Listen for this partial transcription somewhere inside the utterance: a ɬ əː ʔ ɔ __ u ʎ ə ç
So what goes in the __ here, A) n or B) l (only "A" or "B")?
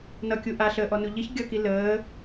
A